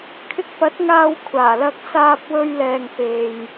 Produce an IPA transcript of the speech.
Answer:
kʰ ɪ˧ k̚ p ɐ˨˥ t̚ ŋ aː˧ w kʷʰ aː˨˩ l ɐ˧ k̚ s aː˧ p̚ w ɵ˧ ɥ l ɛː˨ ŋ p e˨ j

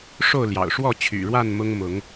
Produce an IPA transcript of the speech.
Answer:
ʂ o˥˨ ʊ̯ l j ɑ̰˨˩ ʊ̯ ʂ w ɔ˥˨ t͡ɕʰ y̰˨˩ ɻ w a˥˨ n m ʊ˦ ŋ m ʊ˨˦ ŋ

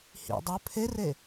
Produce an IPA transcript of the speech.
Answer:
h ḭ dˤ ɵ pʰ e r e

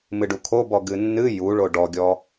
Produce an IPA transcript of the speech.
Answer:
m ɨ ɖ u kʰ o b ɔ ɡ ɨ nː ɨ j u ɭ o ɖ ɔ ɡʲ ɔ

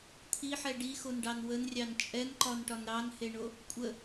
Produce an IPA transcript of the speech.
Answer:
t̪ʰ i ħ ɛ ɖ i x o n ɖ ɑ n w ə n rʲ ɑ n t͡ʃʼ ɛ n ǃ ɒ n ʈ ɒ n ɾ ɑ n h e ɳ o | kʷʼ ə

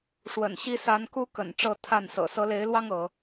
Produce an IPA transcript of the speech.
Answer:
ʂ w ə̰˨˩ n ɕ i˦ s a˨˦ n k u˦ k ə̰˨˩ n ʈ͡ʂ ɤ˥˨ t̪ʰ a˥˨ n s ɤ̰˨˩ s ɤ˨˦ l e˨˦ ɪ̯ l w ɑ˦ ŋ ɤ˨˦

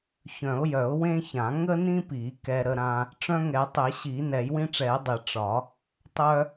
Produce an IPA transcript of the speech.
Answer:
ç œ̃˨˩˦ ʊ̯ j œ˨˩˦ ʊ̯ w ẽ˦ ç ã˨˩˦ ŋ ə˦ n ĩ˦ p i˨˩˦ k ɛ˦ ɾ ə˦ ɾ ã˦ | ʈ͡ʂ œ̃˦ ŋ ɛ˨˩˦ tˤ e˨˩˦ ɕ i˨˩˦ n ɛ˨˩˦ j w ĩ˦ ʈ͡ʂ ɛ˨˩˦ ɪ̯ dˤ e˨˩˦ ʈ͡ʂ ɒ˨˩˦ | tˤ œ˦

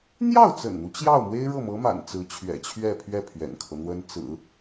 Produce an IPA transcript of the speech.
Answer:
n̪ j ɑ˥˩ ʊ̯ t͡s ə̰˨˩ n n̪ u˦ t͡ɕ j ɑ˥˩ ʊ̯ m w e˥ ɪ̯ ɻ ɤ˥˩ m ɤ˧˥ m a̰˨˩ n t͡s ɹ̩˧˥ t͡ɕʰ ɥ ɛ̰˨˩ t͡ɕʰ ɥ ɛ˥˧ pʰ ɥ ɛ˥˩ pʰ ɥ ɛ̰˨˩ n kʰ ɤ˦ n̪ w ə˥ n t͡s ɹ̩˨˩˦

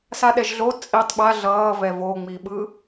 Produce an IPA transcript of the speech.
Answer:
s a ɗ ɛ ʒ ɮ o t͡sʼ i tˤ ɓ a ɮ ʌː v ɛ v o ŋ͡m i ɓ ɯ

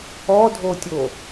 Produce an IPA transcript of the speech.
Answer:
ɔ dʱ o tʲ o

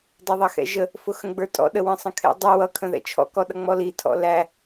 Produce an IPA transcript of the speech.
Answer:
dˤ ʌ ðˤ ɑ x ɛ̰ ʒ ə | f ʊ x ə̃ ɡ͡b ə˞ tʼ ɔ̰ ɗ ə w ə̃ sˤ ə̃ kʰ ɛ̰ dˤ ʊ w ʌ kʰ ə̃ ð ɛ̰ t͡ʃʰ ɔ̰ k ɔ ɗ ʌ ŋ͡m ɔ l i tʰ ɔ̰ l æ

